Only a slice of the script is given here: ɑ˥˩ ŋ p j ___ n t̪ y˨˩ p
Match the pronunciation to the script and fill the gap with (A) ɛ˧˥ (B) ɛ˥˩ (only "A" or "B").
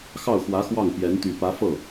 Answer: A